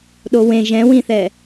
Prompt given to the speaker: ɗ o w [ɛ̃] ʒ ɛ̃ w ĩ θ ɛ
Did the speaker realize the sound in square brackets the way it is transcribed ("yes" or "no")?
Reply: no